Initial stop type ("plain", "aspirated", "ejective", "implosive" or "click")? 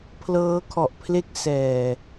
aspirated